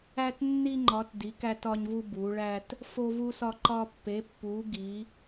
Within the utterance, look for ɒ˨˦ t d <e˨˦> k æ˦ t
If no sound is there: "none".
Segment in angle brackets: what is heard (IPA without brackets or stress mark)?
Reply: i˨˦